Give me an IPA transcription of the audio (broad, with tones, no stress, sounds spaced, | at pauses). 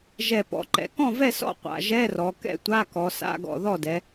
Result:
ʒ ɛ˨˩ p ɔ̰˨˩ ǃ ɛ̰˩˧ k ɔ̃˥˨ v ɛ˥˨ s ɔ̰˥˨ qʷ a̰˨˩ ʒ ɛ˧˥˧ r ɔ˩˧ k ɛ̰˥˨ tʷ a˧˥˧ k ɔ˩˧ s a̰˧˥˧ ɡ ɔ̰˨˩ ð ɔ˥˨ d ɛ˩˧